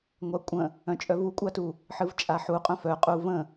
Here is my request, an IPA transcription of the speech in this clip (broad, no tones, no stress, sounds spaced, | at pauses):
ŋʷ a kʷʼ ə̃ | œ̃ t͡ʃʼ œ v u kʷʼ a t u | ħ ɨ v t͡ʃʼ a ħ u qʼ œ̃ f œ qʼ u v ə̃